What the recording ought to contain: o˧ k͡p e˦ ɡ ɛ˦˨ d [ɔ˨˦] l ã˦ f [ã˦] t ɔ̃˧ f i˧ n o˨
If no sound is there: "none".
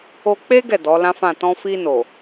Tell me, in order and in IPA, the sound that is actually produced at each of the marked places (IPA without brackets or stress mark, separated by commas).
ɔ˨˦, ã˦˨